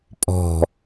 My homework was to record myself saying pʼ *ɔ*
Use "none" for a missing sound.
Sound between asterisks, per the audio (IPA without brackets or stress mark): ɔ̤